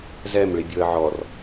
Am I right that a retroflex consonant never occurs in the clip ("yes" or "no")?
no